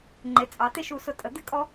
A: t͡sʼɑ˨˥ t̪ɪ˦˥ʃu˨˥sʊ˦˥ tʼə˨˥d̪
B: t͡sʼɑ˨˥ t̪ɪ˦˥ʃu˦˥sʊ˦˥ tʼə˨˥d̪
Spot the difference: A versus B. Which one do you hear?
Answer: B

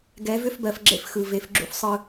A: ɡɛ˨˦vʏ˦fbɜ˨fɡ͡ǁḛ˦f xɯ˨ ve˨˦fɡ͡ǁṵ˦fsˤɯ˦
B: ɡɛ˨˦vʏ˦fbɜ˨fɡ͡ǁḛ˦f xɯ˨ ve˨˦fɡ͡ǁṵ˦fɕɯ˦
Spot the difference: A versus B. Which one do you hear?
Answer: A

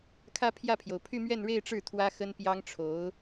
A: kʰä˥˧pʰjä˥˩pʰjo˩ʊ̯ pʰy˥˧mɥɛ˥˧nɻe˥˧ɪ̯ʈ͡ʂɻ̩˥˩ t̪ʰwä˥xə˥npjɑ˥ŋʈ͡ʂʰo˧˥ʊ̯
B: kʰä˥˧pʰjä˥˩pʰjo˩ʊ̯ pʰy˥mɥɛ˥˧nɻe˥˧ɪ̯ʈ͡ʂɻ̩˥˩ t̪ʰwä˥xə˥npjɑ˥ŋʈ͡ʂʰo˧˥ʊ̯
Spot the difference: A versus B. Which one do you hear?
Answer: A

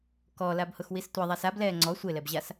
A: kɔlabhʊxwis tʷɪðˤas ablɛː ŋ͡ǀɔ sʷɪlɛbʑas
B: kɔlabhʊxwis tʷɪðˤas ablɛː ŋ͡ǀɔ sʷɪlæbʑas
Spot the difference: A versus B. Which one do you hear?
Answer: A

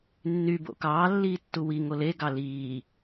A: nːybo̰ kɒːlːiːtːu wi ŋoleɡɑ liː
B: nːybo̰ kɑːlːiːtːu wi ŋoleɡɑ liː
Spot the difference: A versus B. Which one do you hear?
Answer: B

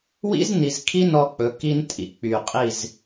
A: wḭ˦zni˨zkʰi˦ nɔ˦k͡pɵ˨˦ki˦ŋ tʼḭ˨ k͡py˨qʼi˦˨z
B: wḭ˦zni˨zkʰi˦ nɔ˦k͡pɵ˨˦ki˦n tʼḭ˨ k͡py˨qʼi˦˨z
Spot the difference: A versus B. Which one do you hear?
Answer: B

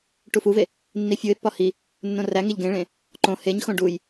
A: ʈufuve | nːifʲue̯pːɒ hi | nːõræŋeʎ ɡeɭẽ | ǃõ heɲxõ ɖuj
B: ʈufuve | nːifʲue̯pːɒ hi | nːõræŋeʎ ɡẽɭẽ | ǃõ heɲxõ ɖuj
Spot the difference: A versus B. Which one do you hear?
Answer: B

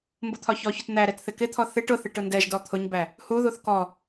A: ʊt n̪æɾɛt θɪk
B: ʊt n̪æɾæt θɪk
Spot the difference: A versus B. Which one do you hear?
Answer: A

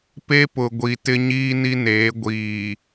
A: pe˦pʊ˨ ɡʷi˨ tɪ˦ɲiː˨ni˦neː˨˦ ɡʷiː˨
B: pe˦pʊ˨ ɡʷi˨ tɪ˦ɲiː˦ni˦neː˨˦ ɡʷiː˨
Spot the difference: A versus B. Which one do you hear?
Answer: B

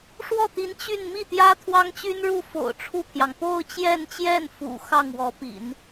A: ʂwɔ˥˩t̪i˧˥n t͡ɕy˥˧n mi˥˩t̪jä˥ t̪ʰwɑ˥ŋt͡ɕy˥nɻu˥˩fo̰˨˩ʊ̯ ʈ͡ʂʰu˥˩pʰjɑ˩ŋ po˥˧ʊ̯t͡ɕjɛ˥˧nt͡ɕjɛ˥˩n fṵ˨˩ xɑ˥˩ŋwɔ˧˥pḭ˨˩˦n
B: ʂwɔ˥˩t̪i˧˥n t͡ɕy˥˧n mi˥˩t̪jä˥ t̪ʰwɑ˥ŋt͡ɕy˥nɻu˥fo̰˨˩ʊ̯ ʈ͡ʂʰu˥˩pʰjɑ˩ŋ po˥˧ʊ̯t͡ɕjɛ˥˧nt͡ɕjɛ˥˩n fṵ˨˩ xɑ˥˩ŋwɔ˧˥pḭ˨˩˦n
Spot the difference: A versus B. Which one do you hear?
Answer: A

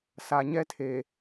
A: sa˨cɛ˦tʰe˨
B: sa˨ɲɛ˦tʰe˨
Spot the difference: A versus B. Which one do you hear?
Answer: B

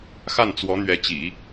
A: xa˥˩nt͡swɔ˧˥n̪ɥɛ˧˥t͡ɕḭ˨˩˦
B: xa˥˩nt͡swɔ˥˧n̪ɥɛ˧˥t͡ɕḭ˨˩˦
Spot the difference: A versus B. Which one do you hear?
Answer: A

